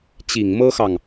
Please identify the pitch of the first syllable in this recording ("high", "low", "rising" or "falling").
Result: low